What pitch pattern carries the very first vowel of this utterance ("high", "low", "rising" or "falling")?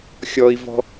low